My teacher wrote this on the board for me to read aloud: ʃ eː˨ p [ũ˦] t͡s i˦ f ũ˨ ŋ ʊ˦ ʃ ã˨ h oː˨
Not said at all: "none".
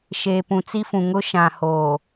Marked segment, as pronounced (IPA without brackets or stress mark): ũ˨